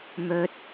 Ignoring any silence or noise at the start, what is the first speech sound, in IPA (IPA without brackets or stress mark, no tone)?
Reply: m